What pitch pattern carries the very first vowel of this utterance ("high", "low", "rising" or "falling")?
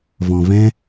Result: low